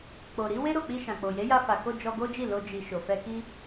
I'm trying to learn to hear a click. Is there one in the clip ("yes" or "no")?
no